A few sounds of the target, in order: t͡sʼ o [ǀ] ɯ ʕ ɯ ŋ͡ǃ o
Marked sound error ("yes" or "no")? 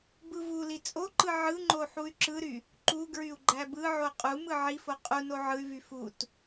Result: yes